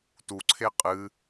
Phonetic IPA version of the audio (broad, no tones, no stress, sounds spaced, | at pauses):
t u ǀʰ e qʼ ɨ